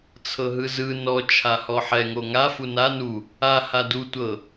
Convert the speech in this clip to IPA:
t͡sʰ ɤ ɦ ɯ z ɯ n ɔ t͡ʃʰ a h ɔ ħ ɛ ŋ o ŋ a f u n a n u | a h a d u tʷ ɤ

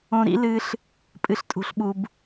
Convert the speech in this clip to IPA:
õ˧ ɾ ḭ˦ l ɨ˧ ɬ | pʼ ɨ˨ ɬ tʼ ṳ˨ ɬ ɓ u˨ b

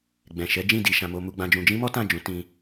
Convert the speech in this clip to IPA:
ɡ͡b ɛ̃˨ ʃ ɛ˨˦ d͡ʒ ĩ˦˨ d i˧ ʃ ã˧ m o˦ m u˧ ɡ͡b ã˧ d͡ʒ ũ˧ d͡ʒ ĩ˦ m ɔ˦ t ã˦˨ d͡ʒ ũ˨˦ t ĩ˧

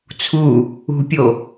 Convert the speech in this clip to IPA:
t͡sʰ u | ṳ pʲ o

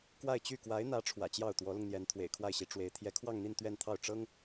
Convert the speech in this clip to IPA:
k w a˥˧ ɪ̯ t͡ɕ y˥˩ k w a˧˥ ɪ̯ n̪ ä˧˥ ʈ͡ʂʰ w ä̰˨˩ t͡ɕ j ɑ˥˩ ʊ̯ t̪ w ɔ˧˥ l ʊ˧ ŋ n̪ j ɛ˧˥ n t̪ʰ w ḛ˨˩ ɪ̯ kʰ w a˥˩ ɪ̯ ɕ i˧˥ ʈ͡ʂ w e˧˥ ɪ̯ t̪ʰ j ɛ˧˥ kʰ w ɑ˥˧ ŋ n̪ i˥˧ n t̪ ɥ ɛ˥˧ n t̪ʰ ɑ˥˩ ʊ̯ ʈ͡ʂ ɤ˥ ŋ

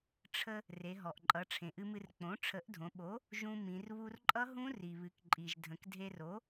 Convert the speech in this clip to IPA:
ʈ͡ʂʰ ə˧ | r e˩˧ ɦ ɔ˩ ʔ ǃʼ ʌ˩˧ ʈ͡ʂʰ ẽ˩ ʔ ɨ˧ m ɨ˧ r k͡p õ˩˥ ʈ͡ʂʰ ə˩˥ ʔ dʱ õ˩˧ ɓ o˩˥ | ʒ ũ˧ m ĩ˩˧ r β u˧ r ǃʼ ʌ˦˥ ɦ ũ˦˥ r i˩ β ɨ˩˧ k ǃʼ i˩ ʒ dʱ ə̃˩˧ k dʱ e˧ r o˩˥

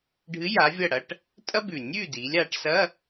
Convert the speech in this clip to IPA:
ɖʱ ɨ˨˥ j a˨˥ vʲ ɐ˥˨ ɽ ɐ˧˥˧ ʈ | tʼ ɐ˥ b ʉ˨˩ nʲ ʉː˥˨ d iː˩˧ lʲ aː˩˧ ʈ s ɐ˧˥˧

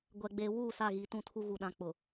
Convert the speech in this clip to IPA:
ɡʷ ɛ˨ ɡ͡b eː˨ w uː˦˨ s a˦˨ ɣ iː˨ t ũ˦˨ tʰ u˦ ɣ u˨ ɗ ã˨ k͡p ʊ˨

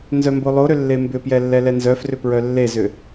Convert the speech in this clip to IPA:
n z œ m b o lˠ o ɾ ʏ lː e m b ʏ p j ɛ lː ɛ l ɛ n z œ f r ʏ p ɹ œ lː e z ʏ

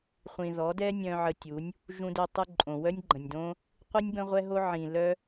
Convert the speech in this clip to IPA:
χʷ ĩ˨ ð ɔ˨˦ d ɛ˦ nʲ œ̃˧ ʕ ə˧ tʲ u˨˦ nʲ | ʒ ũ˧ d ø˧ tˤ u˧ ǃʼ õ˨ w œ˦ nʲ ɡ͡ǃ ə̃˨ nʲ d õ˦ | qʷ i˦ nʲ b ə̃˦ ʁʷ ɛ˦ ɦ o˦ ʕ ĩ˨ l œ˦

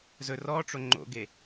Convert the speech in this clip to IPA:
z ɵ r ɔ ʈ͡ʂ o ŋ͡ǃ o̰ ɡ e

